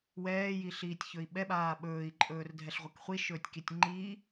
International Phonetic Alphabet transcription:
w ɛː j i ɬ iː tʲ ç ɵ i̯ ɓ ɛ ɓ aː ɓ ɵː i̯ ǃʼ ɵː r dʱ ɛ ɬ ʁʷ ɛ k χʷ i ʃ ɵː tʲ k i tʲ ŋ͡ǃ iː

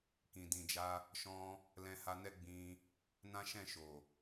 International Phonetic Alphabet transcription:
k ĩ˨ d ĩ˨ d͡ʒ a˧ | ʃ ɔ̃˧ | l ɛ̃˧ h a˧ n ɛ˦ ɡ͡b ĩ˧ | n ã˦ ʃ ɛ̃˦˨ ʃ o˨

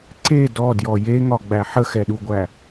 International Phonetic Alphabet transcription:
ǀ e d ɔ d j ɔ j e ŋ ɒ ɡ͡b æ ħ ə x ɛ ɗ u ɡʷ æ

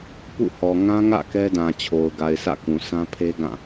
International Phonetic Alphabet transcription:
p ṵ˦˨ h ɔ˨ ŋ ã˦ ŋ ä̰˦˨ k ɛ˦ d ã˨ t͡ɕʰ o˨ ʊ̯ ɡ a˨ ɪ̯ s ä̰˦˨ k ũ˨ s ã˦ pʰ e˦ ɡ ã˦˨

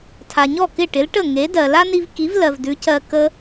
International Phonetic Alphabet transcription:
tʰ a˩ ɲ ɔ˥˩ k ɪ˥˩ ʈ ɪ˩˥ l ʈ ə˥˩ ŋ e˩˥ d ɜ˩ l a˥ n i˧ v k i˩˥ v l ɜ˩ v d ʉ˩˥ c ɜ˧ k ə˧

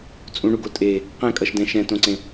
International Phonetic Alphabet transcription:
t͡sʼ ũ ɳ u ɡ o tʼ e | q ɛ̃ kʼ ʌ ʃ d ɛ̃ ʃ ɛ̃ t õ ǀ ẽ

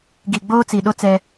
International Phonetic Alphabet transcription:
ɡ i˨ ɡ͡b oː˦ t͡s i˨ ɗ o˦ t͡s ɛ˦

